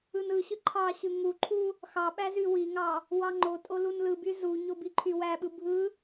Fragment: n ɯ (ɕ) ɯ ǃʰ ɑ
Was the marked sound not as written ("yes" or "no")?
no